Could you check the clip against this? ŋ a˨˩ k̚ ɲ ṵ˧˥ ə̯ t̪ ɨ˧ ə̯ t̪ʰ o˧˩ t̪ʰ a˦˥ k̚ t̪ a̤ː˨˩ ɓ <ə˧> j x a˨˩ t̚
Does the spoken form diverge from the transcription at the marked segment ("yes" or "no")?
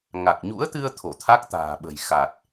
yes